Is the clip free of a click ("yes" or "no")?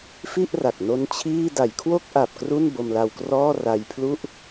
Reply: yes